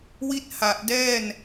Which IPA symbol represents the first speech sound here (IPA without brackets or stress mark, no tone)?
w